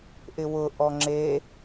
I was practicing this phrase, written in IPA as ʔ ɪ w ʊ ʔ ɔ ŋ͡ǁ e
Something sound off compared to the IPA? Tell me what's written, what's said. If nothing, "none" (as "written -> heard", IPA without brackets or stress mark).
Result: none